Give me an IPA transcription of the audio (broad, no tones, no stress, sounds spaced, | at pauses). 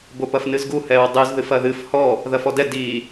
b o p ɐ f n ɨ z ɡ u h ɛ ɹ dˤ ɨ z ð ɨ f ɐ ð ɨ f h ɔ | ð ɐ f ɔ d ɛ d i